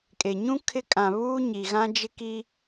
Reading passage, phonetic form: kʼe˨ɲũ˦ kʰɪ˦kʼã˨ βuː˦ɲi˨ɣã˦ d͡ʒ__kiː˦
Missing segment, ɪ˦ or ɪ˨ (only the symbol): ɪ˦